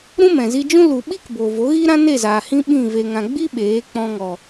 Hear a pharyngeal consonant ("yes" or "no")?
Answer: no